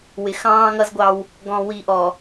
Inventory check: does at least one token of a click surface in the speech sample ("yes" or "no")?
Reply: no